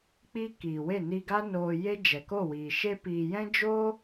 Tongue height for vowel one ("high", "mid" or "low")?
high